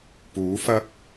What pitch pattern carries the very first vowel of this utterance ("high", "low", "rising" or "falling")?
rising